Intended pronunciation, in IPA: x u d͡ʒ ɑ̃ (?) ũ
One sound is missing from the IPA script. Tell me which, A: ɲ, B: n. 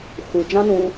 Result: B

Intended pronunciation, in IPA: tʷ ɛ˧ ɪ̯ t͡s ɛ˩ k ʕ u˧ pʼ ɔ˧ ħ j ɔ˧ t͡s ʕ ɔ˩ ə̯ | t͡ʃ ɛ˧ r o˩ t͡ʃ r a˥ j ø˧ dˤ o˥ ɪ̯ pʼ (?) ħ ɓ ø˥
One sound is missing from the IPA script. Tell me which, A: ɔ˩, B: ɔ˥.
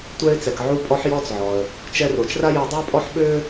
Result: B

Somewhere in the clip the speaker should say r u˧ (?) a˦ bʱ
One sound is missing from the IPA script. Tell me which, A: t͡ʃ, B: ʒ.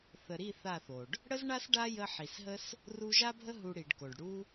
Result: B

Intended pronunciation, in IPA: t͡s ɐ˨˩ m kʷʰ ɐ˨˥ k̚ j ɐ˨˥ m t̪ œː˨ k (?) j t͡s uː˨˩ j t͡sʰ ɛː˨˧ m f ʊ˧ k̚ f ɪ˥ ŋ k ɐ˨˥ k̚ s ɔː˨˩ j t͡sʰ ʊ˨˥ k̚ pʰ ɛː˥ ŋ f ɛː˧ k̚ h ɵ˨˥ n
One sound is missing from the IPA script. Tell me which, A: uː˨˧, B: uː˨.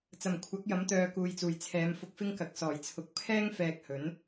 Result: B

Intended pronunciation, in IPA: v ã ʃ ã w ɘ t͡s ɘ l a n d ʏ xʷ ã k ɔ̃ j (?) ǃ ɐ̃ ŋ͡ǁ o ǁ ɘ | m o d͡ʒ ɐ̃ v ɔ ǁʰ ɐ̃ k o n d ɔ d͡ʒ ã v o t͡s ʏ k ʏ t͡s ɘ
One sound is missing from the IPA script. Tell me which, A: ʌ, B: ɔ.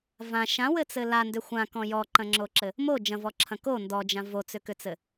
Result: B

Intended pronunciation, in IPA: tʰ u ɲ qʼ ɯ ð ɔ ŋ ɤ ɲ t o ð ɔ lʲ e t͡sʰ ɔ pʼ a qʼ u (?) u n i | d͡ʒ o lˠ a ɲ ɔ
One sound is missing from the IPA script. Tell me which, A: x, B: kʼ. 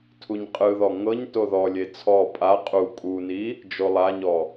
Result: B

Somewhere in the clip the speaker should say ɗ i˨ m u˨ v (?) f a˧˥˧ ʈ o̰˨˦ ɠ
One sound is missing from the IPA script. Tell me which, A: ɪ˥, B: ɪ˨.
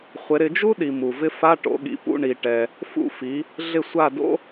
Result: A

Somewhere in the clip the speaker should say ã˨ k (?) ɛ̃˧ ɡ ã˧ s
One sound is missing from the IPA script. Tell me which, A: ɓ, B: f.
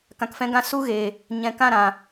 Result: B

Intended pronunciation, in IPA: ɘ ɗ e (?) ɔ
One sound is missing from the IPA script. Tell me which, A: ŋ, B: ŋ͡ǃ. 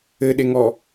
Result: A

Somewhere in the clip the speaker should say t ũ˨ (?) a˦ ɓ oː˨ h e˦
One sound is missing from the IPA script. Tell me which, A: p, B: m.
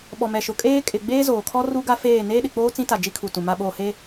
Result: B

